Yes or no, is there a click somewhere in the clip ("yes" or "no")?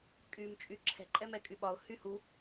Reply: yes